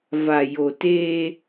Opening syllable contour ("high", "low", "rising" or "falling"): low